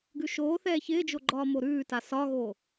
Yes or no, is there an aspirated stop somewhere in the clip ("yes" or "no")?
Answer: no